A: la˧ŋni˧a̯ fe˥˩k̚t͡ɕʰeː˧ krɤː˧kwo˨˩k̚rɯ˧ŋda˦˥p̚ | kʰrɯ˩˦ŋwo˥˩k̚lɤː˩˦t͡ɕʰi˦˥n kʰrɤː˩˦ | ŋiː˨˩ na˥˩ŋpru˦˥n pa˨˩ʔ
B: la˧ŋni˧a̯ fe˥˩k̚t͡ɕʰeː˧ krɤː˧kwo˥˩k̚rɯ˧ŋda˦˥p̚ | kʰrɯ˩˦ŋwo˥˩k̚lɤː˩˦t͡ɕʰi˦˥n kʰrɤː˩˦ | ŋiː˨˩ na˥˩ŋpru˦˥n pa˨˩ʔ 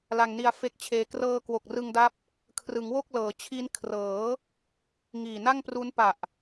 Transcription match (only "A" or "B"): A